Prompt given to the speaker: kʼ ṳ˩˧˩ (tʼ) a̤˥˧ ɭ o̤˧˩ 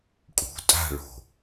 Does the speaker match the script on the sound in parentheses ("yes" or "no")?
yes